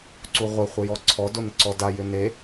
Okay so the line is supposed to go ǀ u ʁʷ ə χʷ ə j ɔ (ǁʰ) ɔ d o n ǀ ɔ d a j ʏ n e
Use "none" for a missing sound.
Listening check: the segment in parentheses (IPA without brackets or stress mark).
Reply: ǀʰ